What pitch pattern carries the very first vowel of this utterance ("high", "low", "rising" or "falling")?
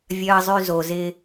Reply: low